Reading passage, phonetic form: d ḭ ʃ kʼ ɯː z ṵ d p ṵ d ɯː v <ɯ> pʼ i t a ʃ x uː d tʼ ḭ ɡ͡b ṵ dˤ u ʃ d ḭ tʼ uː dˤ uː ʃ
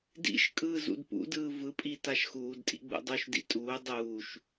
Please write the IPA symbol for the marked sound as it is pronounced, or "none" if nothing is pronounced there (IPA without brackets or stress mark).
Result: ɯ